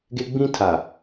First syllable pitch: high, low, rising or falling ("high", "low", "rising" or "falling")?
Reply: high